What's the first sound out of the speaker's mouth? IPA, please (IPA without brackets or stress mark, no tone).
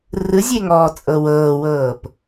r